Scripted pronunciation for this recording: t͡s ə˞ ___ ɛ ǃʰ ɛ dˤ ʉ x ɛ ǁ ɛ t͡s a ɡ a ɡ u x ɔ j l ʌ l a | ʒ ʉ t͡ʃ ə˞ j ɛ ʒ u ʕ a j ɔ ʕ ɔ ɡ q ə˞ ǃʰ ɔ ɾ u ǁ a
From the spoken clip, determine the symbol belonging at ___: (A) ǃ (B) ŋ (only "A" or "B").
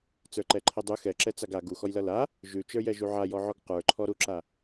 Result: A